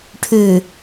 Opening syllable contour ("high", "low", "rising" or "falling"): low